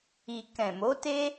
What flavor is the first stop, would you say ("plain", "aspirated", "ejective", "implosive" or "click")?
plain